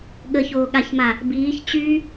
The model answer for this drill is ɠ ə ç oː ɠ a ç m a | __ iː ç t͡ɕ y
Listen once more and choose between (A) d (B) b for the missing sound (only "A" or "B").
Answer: B